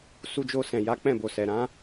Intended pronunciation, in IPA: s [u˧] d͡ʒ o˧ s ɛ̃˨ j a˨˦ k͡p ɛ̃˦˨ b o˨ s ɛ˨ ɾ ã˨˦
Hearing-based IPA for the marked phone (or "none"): u˧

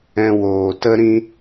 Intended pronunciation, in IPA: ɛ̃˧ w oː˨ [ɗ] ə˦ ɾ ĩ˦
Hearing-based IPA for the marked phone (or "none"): t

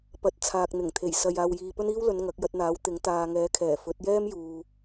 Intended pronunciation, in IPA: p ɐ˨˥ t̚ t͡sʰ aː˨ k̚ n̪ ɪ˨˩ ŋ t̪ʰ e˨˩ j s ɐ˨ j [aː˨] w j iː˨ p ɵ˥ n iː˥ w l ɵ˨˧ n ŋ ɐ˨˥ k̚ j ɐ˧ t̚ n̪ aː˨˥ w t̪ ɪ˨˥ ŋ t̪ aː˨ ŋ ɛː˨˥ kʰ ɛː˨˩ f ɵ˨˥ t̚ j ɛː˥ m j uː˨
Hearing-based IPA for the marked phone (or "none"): aː˨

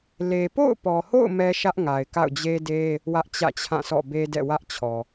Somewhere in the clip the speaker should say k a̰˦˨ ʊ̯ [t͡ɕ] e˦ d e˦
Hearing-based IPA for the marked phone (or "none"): d͡ʑ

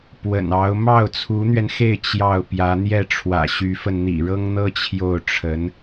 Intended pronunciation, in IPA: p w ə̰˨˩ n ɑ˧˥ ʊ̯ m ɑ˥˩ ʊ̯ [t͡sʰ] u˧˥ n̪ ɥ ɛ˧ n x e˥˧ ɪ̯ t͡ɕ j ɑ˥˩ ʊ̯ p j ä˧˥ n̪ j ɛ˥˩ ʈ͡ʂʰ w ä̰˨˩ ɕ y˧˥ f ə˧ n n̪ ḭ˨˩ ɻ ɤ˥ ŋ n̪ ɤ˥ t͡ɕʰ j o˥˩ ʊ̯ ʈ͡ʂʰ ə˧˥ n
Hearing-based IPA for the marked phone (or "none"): t͡sʰ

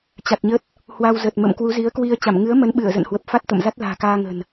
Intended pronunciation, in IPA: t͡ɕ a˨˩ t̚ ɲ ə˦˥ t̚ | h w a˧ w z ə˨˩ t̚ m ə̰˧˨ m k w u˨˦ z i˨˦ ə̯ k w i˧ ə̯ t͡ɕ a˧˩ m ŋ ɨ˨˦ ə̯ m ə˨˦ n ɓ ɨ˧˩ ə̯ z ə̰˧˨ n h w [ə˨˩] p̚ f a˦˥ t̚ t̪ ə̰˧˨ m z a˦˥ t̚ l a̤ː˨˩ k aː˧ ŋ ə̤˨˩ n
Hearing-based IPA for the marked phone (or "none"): ə˨˩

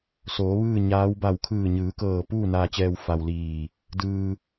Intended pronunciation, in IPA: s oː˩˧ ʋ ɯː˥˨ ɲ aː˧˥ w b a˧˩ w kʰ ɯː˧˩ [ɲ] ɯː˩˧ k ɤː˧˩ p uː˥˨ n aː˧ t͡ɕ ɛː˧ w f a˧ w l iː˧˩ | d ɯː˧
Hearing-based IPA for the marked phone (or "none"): ɲ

